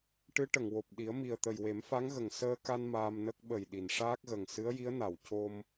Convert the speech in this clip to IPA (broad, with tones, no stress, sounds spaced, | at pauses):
ʈ ɨ˧˥ ʈ ə˨˩˨ ŋ w o˨˩ p̚ ɗ i˨˩˦ ə̯ m i˨˩ ə̯ t̪ ə˨˩ j w e˨˩˦ m f a˧˥ ŋ ɣ ə˨˩ ŋ s əː˧ k a˧ n m aː˧ m n ə˦˥ k̚ ɓ ə˨˩ j ɗ i˨˩˨ n ʂ aː˦˥ k̚ ɣ ə˨˩ ŋ s ɨ˧˥ ə̯ j i˧˥ ə̯ n a˨˩˨ w c o˧ m